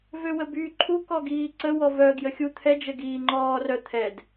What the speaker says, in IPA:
v ø w ə b yː ǃʰ u k ɔ ɡ iː ǀ ə w ɔ v œ ɡ j ə xʲ u t̪ʰ ɛ d͡ʒ ə ɡ iː ŋ͡ǃ ɔː r œ t̪ʰ ɛ d

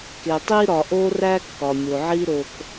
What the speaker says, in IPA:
k e˩ tˤ i˧ ɾ ɒ˩ ʔ o˥ r æ˥ kː ɒ˩ mʲ o˩ ʕ i˥ ɾ o˧ k

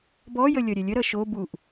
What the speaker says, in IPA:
b ɔ j ə lʲ ʌ ɾʲ ɛ lʲ ə ɾ ʌ ʃ o b u ʔ

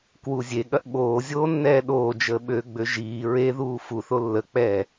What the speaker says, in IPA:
k w u zʲ e ɠ ɐ ʔ ɓ oː zʲ oː nː ɛː ɗ oː d͡ʒ əː ɓ ø ɡ͡b ø ʒ iː ɹ e ð uː f u θ o lː ə k͡p ɛː

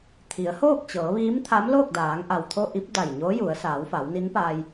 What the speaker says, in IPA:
t̪ʰ i˩˧ ə̯ h oː˥˨ k̚ t͡ɕ ɤː˩˧ ʋ iː˧˥ m t̪ʰ a˧˥ m l oː˥˨ k̚ d aː˩˧ ŋ ʔ a˩ w t̪ʰ o˧ ʔ i˧˥ p̚ d a˧˩ j ɲ oː˧˥ j u˩˧ ə̯ s aː˩˧ w f a˩˧ w n i˧˥ n p aː˧ j

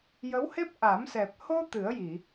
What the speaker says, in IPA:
j ə˧˥ w h e˦˥ p̚ ʔ a˨˩˦ m s ɛ˨˩ p̚ h o˧ t̪ ɨ˨˩˦ ə̯ j i˨˩˨

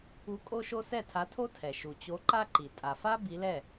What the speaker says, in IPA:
u˨˥ kʼ o˥ ʃ o˥ s ɛ˥˩ tʰ a˨˥ tʰ o˥ tʰ ɛ˩ ʃ u˩ t͡ɕ o˨˥ ǃ a˥ ǃ i˩ tʼ a˩ f a˥ b i˨˥ l ɛ˥˩

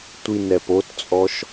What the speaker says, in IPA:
tʷ i n ɛ p o t t͡sʼ ɔ ʃ

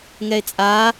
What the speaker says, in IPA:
ŋ ɛ e̯ t͡sʼ a

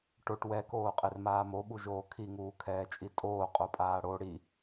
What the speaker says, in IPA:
ʈ o ʈ w ɛ k oː qʼ e r m aː m o ɓ u ʒ oː kʰ i ŋ uː kʰ ɛː t͡ʃʼ i tʼ oː qʼ o pʼ aː ɽ o ɽ i

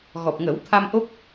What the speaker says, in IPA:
ɣ ɔ˨˩ p̚ ŋ ə˨˩˦ w t̪ʰ a˧ m ʔ o˦˥ p̚

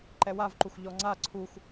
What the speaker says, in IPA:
ǃ ɛ w a v ǃ u x ʎ ɔ ŋ͡ǀ a ǀʰ u x

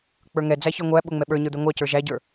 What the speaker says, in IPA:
k͡p ə˞ ŋ ɛ d͡z æ ç ə˞ ŋʷ æ ɓ ʊ ŋ͡m ɛ ɓ ə˞ ɲ ə˞ d̪ ɛ ŋʷ ɑ c ə˞ ʒ æ ɟ ə˞

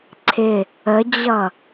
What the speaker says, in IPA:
ǀʰ ɪ | ə d͡ʑ ʌ

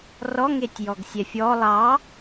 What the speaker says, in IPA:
r ɔ ŋ e tʲ j ɔ ɡ sʲ ɛ fʲ ɔ lˠ ɑ

